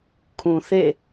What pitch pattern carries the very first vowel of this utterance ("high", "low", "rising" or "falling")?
low